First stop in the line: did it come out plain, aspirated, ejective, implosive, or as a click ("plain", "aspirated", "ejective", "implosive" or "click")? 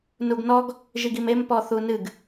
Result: plain